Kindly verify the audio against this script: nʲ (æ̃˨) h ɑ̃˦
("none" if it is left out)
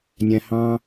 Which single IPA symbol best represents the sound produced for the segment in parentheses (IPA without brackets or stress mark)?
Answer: æ̃˨